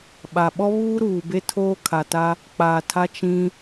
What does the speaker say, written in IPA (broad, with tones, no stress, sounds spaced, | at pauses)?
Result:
ɓ a˨ ɓ ɔ˦ β uː˦ ɾ uː˨ b e˦ tʰ oː˦ kʰ a˨ t a˦ | k͡p aː˨ tʰ a˦ t͡ʃ ĩ˦